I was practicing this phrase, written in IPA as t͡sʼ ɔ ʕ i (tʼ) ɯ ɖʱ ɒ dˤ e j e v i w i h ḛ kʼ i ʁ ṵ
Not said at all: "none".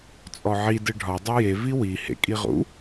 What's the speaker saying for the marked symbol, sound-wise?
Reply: d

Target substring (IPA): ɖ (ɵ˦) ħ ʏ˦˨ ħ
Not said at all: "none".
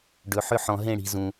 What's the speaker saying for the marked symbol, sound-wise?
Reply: ɵ˨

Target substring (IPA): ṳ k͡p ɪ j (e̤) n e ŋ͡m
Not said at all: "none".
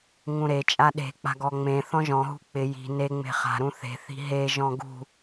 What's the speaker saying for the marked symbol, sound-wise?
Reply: i̤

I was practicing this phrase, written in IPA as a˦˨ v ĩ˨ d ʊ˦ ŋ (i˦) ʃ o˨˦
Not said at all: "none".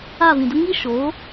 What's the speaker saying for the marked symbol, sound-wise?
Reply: i˦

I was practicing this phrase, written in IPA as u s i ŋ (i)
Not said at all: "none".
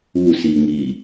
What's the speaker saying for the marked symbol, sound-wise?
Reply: i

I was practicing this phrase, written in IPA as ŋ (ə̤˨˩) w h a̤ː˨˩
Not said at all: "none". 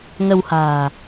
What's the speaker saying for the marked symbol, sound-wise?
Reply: ə˧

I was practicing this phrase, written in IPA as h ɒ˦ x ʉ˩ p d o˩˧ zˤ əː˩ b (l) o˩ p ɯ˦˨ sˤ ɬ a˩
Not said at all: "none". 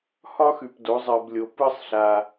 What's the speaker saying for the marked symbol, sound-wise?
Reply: lʲ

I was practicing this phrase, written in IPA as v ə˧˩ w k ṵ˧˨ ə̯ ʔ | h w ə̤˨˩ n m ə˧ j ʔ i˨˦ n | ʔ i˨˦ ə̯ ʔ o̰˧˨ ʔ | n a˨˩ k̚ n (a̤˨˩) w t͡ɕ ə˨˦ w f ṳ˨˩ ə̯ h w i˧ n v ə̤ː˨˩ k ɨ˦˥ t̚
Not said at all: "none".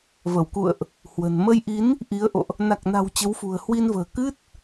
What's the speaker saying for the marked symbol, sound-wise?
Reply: a̤˨˩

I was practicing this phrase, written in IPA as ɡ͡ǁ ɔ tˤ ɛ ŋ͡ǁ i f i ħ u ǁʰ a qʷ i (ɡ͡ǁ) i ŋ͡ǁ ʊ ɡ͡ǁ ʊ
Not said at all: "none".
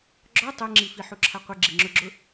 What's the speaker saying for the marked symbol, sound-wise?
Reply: ɡ͡ǁ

